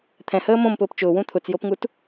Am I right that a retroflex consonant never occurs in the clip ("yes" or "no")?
yes